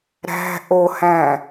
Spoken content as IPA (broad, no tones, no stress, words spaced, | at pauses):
ɾæ̤ ʔohæ̃